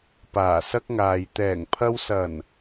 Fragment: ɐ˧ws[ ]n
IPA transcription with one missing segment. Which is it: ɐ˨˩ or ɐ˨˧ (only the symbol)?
ɐ˨˩